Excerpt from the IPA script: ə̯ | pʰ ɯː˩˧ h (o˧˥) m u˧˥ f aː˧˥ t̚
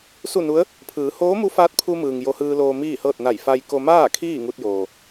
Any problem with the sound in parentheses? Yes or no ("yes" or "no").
yes